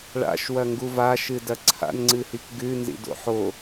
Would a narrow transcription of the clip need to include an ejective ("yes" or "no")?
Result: no